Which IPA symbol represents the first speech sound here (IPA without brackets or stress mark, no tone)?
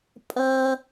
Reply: pʼ